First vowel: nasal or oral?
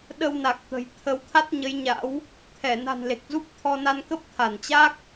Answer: oral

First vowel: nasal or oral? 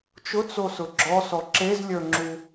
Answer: oral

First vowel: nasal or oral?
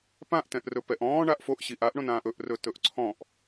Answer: nasal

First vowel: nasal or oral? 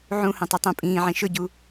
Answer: nasal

